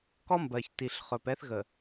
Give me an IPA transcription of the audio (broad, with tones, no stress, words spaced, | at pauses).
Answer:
kɔ˦mbɜ˨ç ti˨ɬχɵ˨pɛ˦θ ɣə˨